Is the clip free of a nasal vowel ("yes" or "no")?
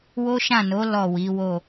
no